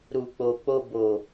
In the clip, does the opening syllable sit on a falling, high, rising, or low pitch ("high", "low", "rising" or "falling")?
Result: low